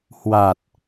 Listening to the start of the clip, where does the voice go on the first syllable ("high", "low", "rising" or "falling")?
low